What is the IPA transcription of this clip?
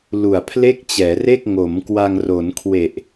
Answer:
lu˨˩a̯pʰle˥˩k̚t͡ɕɛː˩˦re˥˩k̚ ŋo˩˦m kwa˧ŋro˩˦nkʰwe˨˩ʔ

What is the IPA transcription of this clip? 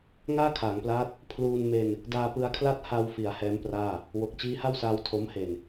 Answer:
ŋaː˥˩kʰaː˩˦ŋplaː˦˥t̚ | pʰluː˧nme˧n | daː˧pɯ˧a̯kʰla˥˩t̚ ha˧wfi˩˦a̯ hɛː˦˥mpraː˥˩ | wo˨˩k̚ t͡ɕiː˦˥ha˥˩wsaː˧w tʰo˦˥m he˨˩n

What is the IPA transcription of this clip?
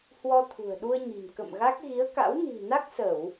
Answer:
hwɔ˧t̪ʰṳ˨˩ə̯ɗu˧ə̯ɲi̤˨˩m kə̰˧˨mɣa˦˥k̚ ɣi˨˦ə̯ka̰˧˥wni̤˨˩ na˦˥k̚sə˧˩˨w

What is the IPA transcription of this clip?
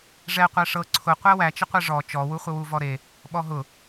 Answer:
ʐɛ qʷæʂɤ ǀʰʊ qʷæwæt͡ʃəqʷɛ ʐɔ t͡ʃɔwuχʷəwu vɔɾe | ɓɔɦʊ

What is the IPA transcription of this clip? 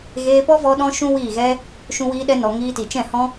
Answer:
ɣeː˧pɔ˦vɔ˧ ɗɔ̃˦ʃũ˦wiː˦˨ɣɛ˦ | ʃũ˧wiː˧ɗɛ˧nɔ˨ ŋiː˧ti˨ t͡ʃɛ̃˦˨hɔ̃˦

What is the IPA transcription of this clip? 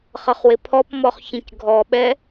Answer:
χʌχwɪpʰɔpmɔχ çĩcɡʱɔɓɛ

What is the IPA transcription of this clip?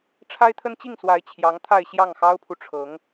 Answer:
ʈ͡ʂʰa˥ɪ̯t̪ʰə˥nt͡ɕi˥˩ŋswa˧˥ɪ̯ t͡ɕʰjɑ˧˥ŋt̪ʰa˥˧ɪ̯ ɕjɑ˥˩ŋxɑ˥ʊ̯pʰu˨ʈ͡ʂʰɤ˧˥ŋ

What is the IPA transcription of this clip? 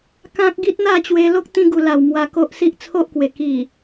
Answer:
kã˦k̚ ɡi˦t̚ n̪a˥˧t͡ɕwe˧lo˦k̚ t̪ĩ˧ɡu˨˩la˨˩w mwa˧ko˦ʔsi˦ʔ t͡sʰo˦ʔkwe˨˩ ki˨˩

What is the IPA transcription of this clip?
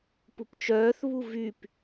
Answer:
pupt͡ʃœːθβu vyp

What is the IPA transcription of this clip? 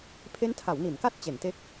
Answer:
pʰe˦˥ntʰa˩˦wni˩˦nka˦˥t̚ t͡ɕe˩˦nte˦˥k̚

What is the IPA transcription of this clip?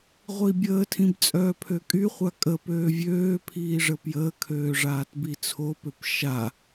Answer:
ʁʷibʲəːtʰĩb t͡sʼœːpʰøkʼyχʷa kʼəpøː vʲøː pʰiːʐəpjəːkʰøː ʐaːtbit͡sʰopøp ʃa

